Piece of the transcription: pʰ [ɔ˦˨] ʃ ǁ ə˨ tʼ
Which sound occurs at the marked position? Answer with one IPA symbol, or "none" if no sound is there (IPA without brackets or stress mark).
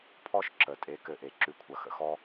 ɔ˦